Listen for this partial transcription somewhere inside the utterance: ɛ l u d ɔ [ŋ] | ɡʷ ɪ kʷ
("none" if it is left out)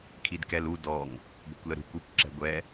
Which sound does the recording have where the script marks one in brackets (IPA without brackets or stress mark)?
ŋ